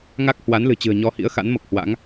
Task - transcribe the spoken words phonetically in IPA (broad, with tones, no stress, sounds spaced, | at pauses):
ŋ a˦˥ k̚ h w a˨˦ n l ɨ̤˨˩ t͡ɕ ɨ̤˨˩ ə̯ ɲ ɔ˧ h ḭ˧˥ ə̯ x a̰˧˥ n m o˨˩ k̚ h w a̰˧˥ ŋ